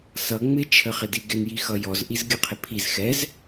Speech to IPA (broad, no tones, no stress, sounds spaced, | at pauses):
s ʌ ŋ͡m ɪ t͡ʃʰ ə χ ɪ d i ɡ ɪ n j i x ʌ j ɔ z ʔ i z ɡʲ ə qʰ ɪ pʰ i z x ɛ z